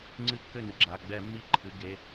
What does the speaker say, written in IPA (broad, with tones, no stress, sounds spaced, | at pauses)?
ŋ͡ǀ ɨ˥˩ kː ɘ˥˩ n ɨ˩ ɡ͡ǁ a˩˧˩ ɡ͡b ɛ˧˩˧ mː i˧˩˧ ǃʰ ɨ˩˧˩ ɡ e˩˧˩